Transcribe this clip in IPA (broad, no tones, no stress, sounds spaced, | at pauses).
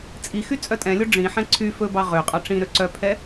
t͡sʼ i x y t͡sʼ œ tʼ ɛ̃ lʲ o ɖ͡ʐ ĩ ħ ɛ̃ ǀʰ y f ɵ b ɑ ʁ ø qʼ ɑ ʈ͡ʂ ĩ ɾ ø ǀ œ pʰ ɛ